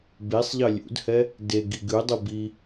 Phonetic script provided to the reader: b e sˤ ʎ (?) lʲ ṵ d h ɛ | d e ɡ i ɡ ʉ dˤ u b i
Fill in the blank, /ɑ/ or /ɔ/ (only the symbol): ɑ